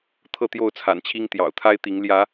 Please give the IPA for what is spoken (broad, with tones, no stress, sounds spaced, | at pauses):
t̪ʰ ɤ˥˨ t̪ j o˥˨ ʊ̯ t͡sʰ a̰˨˩ n t͡ɕʰ i˦ ŋ t̪ j ɑ̰˨˩ ʊ̯ t̪ʰ a˦ ɪ̯ t̪ i˨˦ ŋ l j ä˨˦